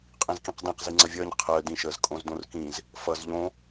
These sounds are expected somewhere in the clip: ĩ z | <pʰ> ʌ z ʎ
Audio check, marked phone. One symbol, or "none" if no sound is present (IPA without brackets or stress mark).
f